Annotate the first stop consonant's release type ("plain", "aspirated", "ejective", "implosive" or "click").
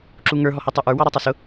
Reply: click